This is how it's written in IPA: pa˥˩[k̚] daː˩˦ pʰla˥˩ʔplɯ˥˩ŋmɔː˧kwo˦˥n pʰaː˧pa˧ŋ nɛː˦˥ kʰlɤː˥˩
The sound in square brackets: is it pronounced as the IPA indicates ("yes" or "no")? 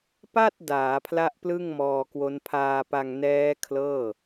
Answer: no